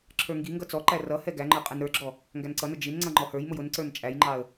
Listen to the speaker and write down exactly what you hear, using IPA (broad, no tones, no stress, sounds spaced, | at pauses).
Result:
ǁʰ ə˞ ŋ ɡ i ŋ ɡ ʌ t͡s ɔ ǃ æ r ʌ h ɛ ɡ æ ŋ͡ǃ ə˞ qʼ ɛ n ɾ ə˞ ɡ͡ǁ ɔ | ŋ ɡ æ n ǀ ʌ n ʊ d͡ʒ i n ŋ͡ǀ ʌ ŋ͡ǃ ɔ h ə˞ j m ʊ j ʊ n ǀ ə˞ n t͡ʃʼ æ j ŋ͡ǃ ɑ ə̯